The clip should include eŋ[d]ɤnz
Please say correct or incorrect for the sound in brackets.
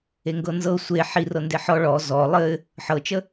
incorrect: ɡ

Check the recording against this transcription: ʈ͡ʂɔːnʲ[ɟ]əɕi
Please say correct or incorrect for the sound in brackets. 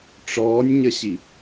incorrect: ɲ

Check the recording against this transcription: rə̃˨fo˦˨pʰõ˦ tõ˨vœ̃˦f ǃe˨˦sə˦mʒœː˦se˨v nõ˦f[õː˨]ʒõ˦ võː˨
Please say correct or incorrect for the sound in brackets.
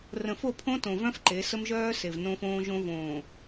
incorrect: õː˦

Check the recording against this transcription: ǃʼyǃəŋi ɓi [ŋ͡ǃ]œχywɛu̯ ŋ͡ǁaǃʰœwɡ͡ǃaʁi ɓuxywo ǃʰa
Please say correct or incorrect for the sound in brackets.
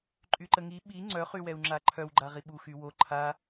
incorrect: ŋ͡ǀ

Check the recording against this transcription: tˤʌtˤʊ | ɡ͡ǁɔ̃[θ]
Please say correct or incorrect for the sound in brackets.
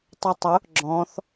correct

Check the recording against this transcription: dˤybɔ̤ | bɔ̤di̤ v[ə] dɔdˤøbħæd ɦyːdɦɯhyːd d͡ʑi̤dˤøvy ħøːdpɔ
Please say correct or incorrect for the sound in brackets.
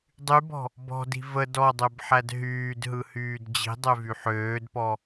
correct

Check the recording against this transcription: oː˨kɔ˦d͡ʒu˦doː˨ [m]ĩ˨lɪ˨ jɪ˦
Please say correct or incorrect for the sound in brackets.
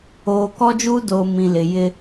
correct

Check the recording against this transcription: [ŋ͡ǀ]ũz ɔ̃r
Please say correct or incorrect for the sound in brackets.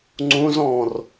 correct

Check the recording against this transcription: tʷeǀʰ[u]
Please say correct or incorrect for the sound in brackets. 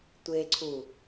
correct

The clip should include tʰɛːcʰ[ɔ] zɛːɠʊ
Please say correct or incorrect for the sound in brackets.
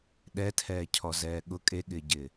correct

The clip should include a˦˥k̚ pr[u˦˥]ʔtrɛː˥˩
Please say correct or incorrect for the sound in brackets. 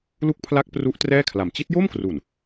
correct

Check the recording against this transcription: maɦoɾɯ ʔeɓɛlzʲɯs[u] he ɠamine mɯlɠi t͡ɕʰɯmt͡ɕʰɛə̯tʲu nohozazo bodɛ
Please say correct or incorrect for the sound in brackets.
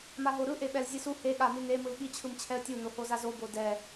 correct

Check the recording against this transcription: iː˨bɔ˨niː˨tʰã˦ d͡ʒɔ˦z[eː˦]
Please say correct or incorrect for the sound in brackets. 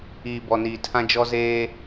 correct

